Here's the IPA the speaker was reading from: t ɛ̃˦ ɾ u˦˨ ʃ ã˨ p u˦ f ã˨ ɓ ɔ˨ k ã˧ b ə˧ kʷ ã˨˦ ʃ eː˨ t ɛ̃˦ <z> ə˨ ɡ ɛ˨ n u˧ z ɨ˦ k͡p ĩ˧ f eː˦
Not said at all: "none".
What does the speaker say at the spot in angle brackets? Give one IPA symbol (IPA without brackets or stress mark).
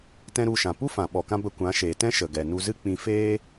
ʃ